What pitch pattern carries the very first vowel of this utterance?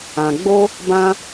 low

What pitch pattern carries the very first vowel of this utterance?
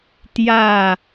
falling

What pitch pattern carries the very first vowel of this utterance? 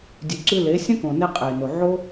low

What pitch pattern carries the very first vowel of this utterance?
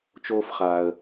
high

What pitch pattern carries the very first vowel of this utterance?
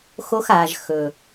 high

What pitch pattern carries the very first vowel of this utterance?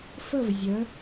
falling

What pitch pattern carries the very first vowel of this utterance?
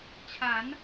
rising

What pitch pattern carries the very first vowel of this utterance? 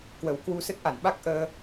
low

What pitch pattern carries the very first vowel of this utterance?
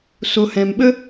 low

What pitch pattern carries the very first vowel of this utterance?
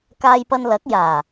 high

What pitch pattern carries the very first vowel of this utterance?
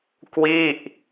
falling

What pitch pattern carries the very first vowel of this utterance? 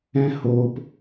high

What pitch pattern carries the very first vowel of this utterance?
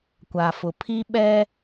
low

